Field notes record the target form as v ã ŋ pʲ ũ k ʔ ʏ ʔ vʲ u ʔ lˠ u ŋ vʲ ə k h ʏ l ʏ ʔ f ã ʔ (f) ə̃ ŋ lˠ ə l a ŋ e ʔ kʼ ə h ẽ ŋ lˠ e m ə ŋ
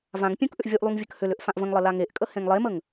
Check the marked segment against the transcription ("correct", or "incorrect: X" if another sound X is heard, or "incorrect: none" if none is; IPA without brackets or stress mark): incorrect: v